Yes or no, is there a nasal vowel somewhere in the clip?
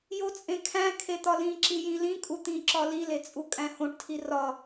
yes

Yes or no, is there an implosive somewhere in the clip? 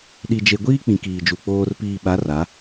yes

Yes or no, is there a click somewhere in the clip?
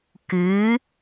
no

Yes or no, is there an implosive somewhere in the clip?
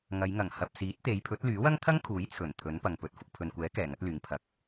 no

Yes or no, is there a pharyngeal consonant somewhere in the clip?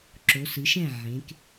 yes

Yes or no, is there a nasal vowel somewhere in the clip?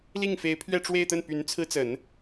no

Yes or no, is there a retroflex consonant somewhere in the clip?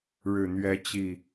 yes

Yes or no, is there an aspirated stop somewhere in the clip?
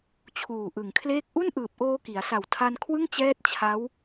yes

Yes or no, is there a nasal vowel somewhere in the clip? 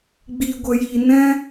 yes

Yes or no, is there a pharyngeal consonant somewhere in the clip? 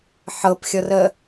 yes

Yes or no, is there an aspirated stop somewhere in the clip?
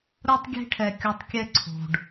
yes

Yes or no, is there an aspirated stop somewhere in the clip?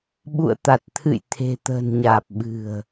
yes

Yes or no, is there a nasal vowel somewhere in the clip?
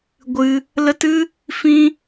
yes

